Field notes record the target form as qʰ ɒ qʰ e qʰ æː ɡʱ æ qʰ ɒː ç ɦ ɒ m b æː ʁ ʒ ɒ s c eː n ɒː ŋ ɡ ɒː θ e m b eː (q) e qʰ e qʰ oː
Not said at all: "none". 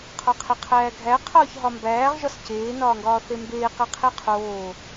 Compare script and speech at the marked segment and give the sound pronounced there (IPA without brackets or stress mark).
q